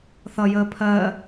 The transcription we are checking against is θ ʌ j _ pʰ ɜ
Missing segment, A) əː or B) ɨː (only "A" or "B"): A